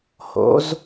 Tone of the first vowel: rising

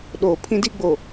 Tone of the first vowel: low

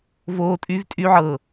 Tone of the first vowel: high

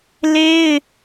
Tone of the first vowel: high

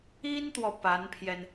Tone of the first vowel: high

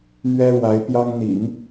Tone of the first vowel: high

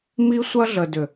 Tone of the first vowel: high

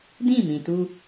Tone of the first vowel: falling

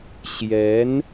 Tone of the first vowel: rising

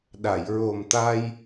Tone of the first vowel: low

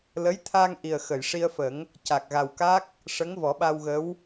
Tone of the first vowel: rising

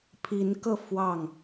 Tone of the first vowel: rising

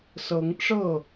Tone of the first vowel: rising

